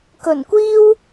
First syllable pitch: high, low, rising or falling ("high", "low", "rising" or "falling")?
low